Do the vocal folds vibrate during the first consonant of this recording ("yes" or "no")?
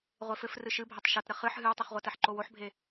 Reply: yes